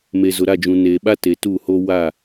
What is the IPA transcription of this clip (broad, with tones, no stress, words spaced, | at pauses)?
me˨zʊ˨ɾa˦˨d͡ʒũ˨ ne˨ ɓa˦ te˨tu˦˨ho˦ wa˦˨